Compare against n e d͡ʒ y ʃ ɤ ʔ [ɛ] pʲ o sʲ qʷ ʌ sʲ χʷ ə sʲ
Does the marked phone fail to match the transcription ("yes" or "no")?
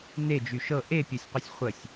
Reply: yes